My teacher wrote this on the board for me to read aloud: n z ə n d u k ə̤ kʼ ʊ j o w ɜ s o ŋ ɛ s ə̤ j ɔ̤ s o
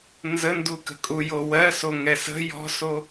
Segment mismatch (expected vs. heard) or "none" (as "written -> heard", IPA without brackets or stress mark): ʊ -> u